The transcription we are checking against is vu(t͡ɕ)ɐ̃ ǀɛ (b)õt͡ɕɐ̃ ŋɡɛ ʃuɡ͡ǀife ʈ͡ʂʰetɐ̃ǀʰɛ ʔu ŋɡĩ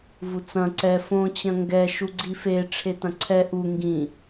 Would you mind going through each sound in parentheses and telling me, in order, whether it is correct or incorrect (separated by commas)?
incorrect, incorrect